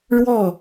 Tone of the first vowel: falling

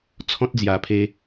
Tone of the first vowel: high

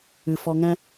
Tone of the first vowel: low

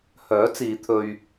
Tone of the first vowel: rising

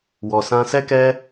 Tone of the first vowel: low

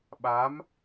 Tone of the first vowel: rising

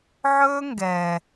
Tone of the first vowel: high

